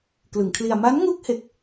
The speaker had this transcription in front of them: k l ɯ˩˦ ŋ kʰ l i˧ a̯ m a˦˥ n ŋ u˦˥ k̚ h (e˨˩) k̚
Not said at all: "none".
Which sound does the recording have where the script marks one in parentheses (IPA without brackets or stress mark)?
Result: e˨˩